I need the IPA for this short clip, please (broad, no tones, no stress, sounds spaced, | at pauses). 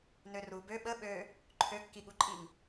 n ø r u b ø ɓ ə ɓ ø | ǃʰ ø kː i ɠ u ǃʼ i ŋ